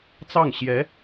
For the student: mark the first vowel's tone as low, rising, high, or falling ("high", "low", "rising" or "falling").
falling